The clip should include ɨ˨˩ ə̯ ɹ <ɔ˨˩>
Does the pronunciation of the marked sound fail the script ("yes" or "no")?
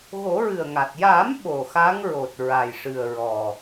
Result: no